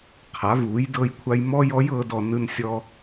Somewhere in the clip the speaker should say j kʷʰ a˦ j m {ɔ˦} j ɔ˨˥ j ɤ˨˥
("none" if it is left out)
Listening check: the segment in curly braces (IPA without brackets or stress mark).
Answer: ɔ˦